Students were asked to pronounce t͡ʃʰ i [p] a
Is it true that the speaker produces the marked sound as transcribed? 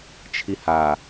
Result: no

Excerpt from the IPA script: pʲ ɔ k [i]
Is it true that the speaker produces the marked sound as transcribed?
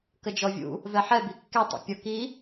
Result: yes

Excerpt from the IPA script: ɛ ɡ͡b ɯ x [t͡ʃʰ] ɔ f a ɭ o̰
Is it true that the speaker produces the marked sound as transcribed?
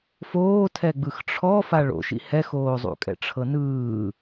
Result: no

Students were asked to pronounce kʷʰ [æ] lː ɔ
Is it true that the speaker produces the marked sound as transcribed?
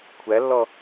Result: yes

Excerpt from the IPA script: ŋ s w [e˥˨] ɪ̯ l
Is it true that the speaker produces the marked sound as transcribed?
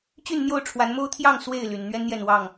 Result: yes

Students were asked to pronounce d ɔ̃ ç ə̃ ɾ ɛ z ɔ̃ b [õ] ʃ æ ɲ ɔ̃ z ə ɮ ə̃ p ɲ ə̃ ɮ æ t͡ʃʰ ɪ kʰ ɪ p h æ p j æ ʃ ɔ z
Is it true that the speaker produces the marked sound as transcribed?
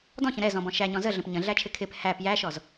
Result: no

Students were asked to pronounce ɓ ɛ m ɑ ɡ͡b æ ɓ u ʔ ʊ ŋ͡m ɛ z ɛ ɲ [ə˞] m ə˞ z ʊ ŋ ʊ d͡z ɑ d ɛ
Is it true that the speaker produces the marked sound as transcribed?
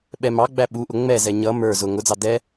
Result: no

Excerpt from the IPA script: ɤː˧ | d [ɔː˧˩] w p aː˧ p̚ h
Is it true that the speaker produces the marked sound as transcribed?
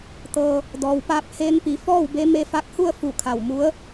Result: no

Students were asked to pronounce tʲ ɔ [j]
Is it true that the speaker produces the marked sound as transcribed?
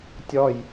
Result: yes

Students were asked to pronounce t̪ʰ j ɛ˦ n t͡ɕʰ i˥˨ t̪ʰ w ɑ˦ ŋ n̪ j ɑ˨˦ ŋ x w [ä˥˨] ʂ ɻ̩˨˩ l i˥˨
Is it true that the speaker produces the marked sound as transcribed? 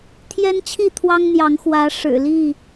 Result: no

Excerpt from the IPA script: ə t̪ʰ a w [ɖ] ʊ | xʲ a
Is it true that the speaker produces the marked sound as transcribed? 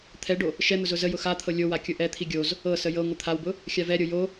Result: no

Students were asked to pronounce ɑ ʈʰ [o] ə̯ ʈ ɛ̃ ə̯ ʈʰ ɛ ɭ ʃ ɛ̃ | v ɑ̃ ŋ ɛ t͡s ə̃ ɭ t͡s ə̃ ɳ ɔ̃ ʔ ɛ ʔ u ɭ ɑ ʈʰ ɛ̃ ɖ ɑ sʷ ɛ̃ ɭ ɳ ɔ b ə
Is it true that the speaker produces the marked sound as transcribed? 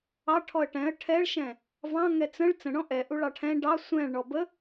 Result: no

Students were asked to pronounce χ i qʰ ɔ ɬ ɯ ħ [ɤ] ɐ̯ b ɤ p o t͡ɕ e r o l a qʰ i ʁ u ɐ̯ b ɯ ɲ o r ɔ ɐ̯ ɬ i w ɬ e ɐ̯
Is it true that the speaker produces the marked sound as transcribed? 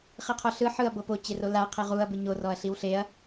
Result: no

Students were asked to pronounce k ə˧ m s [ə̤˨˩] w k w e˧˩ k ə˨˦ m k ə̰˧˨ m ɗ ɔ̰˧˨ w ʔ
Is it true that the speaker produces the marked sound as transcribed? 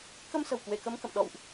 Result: yes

